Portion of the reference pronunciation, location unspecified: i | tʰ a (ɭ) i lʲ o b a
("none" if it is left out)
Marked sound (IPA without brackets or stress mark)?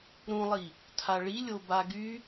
ɭ